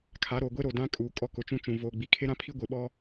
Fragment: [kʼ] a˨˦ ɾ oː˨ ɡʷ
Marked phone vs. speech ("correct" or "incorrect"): incorrect